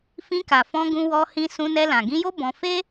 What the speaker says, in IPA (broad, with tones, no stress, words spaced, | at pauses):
fĩ˧ka˨fɔ̃˧ ɡũ˧wɔ˧hĩ˧ sũ˧nɛ˧lã˨ ɡĩ˧jo˦ bɔ̃˧ fe˦